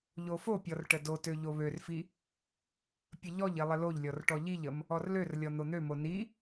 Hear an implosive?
no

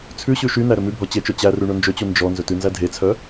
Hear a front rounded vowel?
yes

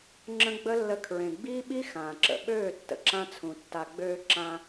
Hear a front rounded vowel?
yes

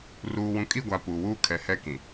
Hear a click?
no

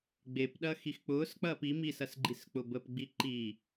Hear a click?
yes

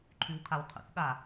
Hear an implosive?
yes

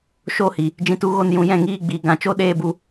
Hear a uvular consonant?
no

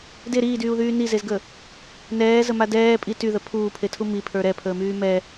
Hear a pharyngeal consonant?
no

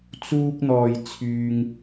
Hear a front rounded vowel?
yes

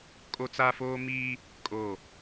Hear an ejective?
yes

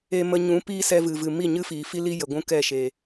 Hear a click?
no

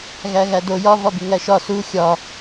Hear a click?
no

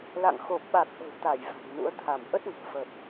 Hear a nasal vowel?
no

